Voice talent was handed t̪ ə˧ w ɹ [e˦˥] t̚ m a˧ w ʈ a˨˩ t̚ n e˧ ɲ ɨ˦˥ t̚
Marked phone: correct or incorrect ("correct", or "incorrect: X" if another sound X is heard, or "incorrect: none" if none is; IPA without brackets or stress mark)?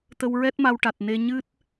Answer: incorrect: ɛ˦˥